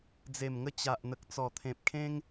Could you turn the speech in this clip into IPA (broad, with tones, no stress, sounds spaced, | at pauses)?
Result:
d͡z e˨˩ m ŋ ə˧ t͡ɕ a˨ ʔ n̪ ə˨ k̚ t͡s ɔ˨˩ t̪ʰ ẽ˨ p̚ kʰ ẽ˦ ŋ